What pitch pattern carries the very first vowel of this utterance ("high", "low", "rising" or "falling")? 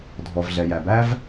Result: low